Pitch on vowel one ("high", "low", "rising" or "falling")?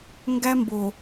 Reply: high